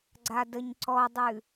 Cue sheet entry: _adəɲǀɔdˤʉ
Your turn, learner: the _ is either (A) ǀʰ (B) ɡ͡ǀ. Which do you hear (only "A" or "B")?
B